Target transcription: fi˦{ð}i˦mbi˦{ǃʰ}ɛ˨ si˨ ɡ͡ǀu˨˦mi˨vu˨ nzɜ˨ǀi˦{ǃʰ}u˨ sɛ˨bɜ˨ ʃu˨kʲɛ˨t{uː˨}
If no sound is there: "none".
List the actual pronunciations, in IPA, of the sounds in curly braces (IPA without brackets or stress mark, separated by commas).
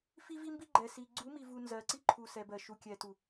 v, ɡ͡ǃ, ǃʰ, u˨